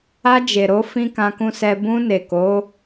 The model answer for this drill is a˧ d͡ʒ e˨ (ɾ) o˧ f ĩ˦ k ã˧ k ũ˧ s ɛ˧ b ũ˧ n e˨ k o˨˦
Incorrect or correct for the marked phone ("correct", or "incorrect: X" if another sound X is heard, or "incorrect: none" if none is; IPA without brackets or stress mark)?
correct